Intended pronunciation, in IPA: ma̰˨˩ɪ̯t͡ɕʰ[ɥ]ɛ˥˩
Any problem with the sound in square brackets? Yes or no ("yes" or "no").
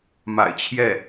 yes